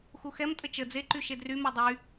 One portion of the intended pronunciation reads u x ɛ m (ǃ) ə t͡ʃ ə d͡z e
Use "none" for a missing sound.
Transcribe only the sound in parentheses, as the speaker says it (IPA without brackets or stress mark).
tʼ